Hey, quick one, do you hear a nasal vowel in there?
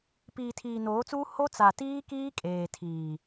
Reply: no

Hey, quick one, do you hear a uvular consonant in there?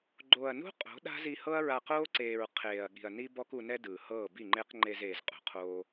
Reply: yes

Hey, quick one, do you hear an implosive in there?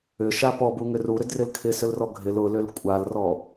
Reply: no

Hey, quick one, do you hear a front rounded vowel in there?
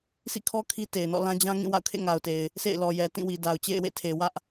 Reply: no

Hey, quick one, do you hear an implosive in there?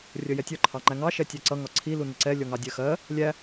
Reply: no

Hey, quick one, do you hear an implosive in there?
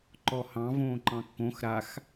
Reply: no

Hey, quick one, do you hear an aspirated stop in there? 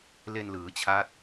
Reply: yes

